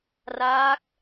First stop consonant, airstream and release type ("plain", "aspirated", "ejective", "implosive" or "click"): plain